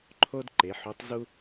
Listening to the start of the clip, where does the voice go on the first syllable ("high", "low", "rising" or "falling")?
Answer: high